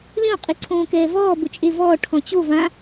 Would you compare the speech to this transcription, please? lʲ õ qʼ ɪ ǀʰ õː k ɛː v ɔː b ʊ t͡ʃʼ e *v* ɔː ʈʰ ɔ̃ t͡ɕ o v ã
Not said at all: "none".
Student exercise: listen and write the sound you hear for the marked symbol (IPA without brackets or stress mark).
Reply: v